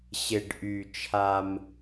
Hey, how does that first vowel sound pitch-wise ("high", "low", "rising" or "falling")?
low